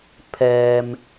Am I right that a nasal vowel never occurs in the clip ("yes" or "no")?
yes